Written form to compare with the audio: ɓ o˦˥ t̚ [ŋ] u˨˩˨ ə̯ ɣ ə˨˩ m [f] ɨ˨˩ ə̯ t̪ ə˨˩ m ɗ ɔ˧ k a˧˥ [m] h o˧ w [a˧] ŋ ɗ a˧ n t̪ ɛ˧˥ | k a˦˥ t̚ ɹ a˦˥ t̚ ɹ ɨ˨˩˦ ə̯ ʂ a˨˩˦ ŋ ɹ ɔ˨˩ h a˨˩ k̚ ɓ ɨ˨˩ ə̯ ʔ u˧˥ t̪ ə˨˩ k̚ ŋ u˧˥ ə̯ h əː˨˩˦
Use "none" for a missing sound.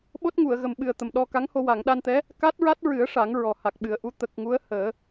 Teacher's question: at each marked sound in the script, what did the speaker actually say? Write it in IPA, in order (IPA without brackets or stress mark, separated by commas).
ŋ, ɓ, ŋ, a˨˩˨